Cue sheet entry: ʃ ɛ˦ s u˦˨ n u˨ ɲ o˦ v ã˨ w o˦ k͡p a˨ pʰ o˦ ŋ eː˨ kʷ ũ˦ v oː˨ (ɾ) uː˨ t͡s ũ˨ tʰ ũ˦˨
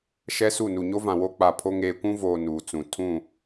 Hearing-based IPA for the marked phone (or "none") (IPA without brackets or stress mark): n